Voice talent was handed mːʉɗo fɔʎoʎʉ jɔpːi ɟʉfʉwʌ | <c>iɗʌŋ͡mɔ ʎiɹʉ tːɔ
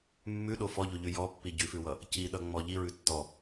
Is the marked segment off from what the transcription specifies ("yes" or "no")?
no